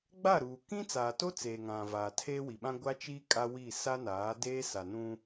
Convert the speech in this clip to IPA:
ɡ͡b a˦˨ ɾ uː˨ k ĩ˦ t͡s aː˨ t o˦ t͡s eː˨ ŋ ã˨ v aː˨ tʰ eː˦ w i˨ ɓ ã˦ ɡʷ a˦ t͡ʃ iː˦ kʼ a˦ w i˦˨ s a˦ n aː˨˦ d eː˦ s a˨ n ũ˦

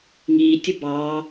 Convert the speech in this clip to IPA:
ŋ iː tʲ ʊ b ɑː

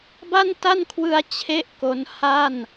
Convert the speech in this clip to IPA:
b a˥˩ n t a˥˩ n kʰ w ɯ˧ a̯ t͡ɕʰ e˥˩ ʔ k o˦˥ n h a˥˩ n

